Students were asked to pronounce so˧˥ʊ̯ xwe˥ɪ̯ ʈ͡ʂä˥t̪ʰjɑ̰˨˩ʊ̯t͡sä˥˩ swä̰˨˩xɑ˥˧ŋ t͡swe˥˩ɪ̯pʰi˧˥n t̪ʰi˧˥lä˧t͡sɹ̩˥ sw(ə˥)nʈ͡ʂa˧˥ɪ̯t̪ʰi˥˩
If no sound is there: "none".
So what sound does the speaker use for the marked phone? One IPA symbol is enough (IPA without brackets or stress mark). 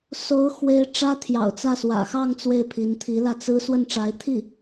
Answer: ə˥˩